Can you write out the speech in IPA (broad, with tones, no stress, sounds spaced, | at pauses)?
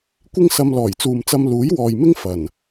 kʷ ɪ˥ ŋ s ɐ˧ m l ɔː˨˩ j t͡s uː˨ m t͡s ɐ˧ m l uː˨˥ j w ɔː˨ j m ɪ˥ ŋ f ɐ˨˩ n